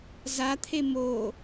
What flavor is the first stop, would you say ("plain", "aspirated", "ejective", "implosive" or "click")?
aspirated